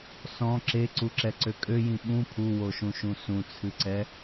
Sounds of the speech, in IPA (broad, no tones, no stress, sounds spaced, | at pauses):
s ɔ̃ ǁ e ǀ u ǁ ɛ ǀ ø kʼ ø j ĩ ɓ ũ pʰ u w o ʃ ũ ʃ ũ s ũ t͡sʰ ɨ ǀ ɛ